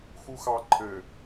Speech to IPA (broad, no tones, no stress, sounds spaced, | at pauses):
x u x ɑ ǃʰ ɘ